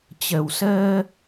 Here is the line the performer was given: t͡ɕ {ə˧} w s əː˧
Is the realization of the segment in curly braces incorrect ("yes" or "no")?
yes